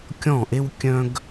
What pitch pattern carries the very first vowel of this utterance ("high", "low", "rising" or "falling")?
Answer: falling